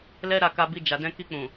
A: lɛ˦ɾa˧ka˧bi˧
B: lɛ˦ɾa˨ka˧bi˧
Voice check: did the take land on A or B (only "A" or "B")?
A